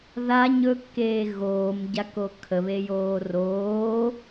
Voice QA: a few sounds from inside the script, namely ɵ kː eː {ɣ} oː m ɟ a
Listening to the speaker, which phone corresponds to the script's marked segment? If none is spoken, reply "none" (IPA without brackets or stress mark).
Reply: ɣ